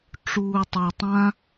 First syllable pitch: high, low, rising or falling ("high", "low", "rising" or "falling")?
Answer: low